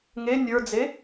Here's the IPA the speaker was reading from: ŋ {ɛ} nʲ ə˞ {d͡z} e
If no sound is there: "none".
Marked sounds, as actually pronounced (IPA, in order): e, d͡z

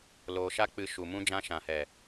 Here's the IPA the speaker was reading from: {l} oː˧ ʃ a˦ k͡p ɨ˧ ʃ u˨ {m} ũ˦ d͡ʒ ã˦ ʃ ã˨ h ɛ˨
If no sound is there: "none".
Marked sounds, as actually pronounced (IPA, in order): l, m

